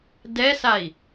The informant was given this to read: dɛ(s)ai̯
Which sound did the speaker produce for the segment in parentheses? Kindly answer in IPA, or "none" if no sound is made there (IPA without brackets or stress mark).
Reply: s